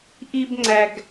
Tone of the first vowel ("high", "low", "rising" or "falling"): high